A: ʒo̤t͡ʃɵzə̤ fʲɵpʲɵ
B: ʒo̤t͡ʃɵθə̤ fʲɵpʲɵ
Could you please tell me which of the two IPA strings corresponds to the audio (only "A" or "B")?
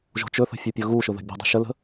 B